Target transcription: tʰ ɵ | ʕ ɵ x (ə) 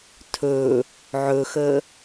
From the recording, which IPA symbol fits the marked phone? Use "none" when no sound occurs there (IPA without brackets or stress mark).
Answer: ə